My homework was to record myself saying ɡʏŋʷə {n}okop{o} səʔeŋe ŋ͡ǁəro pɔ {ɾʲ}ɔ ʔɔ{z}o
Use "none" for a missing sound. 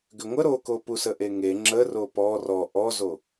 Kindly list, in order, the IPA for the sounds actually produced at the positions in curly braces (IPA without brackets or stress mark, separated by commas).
ɾ, u, r, z